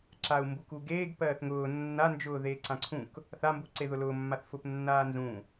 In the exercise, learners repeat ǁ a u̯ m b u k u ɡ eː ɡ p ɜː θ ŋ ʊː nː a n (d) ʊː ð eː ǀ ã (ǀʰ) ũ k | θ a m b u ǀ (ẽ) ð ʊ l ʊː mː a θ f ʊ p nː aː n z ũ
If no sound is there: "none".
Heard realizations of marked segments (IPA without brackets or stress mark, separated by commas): d͡ʒ, ǀʰ, e